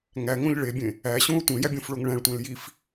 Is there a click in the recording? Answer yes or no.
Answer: no